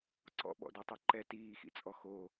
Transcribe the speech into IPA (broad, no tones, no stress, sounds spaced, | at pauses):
ǀ ɔ̰ ɓ ɔ̰ d ɔ tˤ ɤ ǃ ɛ t iː x ḭ t͡sʼ ɔ x o